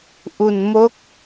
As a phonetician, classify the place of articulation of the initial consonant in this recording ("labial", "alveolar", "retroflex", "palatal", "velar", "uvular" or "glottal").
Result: glottal